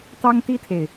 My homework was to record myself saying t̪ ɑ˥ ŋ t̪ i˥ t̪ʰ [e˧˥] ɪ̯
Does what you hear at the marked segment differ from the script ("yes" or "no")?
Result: yes